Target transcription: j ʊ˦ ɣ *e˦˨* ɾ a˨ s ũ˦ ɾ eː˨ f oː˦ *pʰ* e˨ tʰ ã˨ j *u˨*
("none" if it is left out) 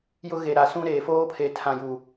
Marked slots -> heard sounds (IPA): e˨, pʰ, u˨

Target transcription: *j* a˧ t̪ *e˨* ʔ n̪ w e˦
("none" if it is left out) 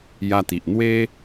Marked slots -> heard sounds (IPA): j, i˨

